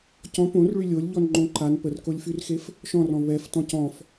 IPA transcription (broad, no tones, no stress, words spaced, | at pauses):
cɔ̃ põrɭy lʲolʲʎɔnŋ͡ǃõ ǃan pərkolʲfyrxef | ʃɔ̃rɔ̃ βɛftɔ̃c ɔ̃f